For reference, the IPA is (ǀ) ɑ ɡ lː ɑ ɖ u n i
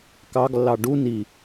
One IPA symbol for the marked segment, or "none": k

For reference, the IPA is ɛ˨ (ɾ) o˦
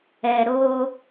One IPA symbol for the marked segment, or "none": ɾ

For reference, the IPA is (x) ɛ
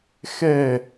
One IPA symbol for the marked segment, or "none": x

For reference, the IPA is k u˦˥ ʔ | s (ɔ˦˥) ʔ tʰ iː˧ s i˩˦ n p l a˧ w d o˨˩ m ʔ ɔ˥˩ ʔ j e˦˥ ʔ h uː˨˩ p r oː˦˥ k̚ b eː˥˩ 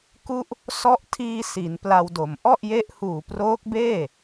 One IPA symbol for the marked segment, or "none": ɔ˦˥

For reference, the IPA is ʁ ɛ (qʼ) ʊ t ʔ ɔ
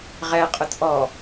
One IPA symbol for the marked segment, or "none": qʼ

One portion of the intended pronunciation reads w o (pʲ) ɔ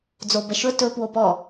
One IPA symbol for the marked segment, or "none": p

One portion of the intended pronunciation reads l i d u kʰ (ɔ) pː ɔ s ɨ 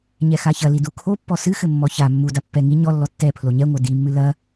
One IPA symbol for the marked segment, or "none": o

